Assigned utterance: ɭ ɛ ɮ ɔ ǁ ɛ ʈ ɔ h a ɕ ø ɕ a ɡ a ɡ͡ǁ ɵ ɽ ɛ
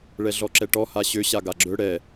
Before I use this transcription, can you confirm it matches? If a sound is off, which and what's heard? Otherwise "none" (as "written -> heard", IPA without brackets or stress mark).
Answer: none